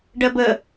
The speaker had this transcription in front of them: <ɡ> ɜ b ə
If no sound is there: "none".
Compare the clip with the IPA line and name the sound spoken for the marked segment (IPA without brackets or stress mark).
ɖ